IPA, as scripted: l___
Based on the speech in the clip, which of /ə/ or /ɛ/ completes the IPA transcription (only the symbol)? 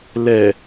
ɛ